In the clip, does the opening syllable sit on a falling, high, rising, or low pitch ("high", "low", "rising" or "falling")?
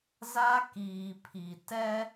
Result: high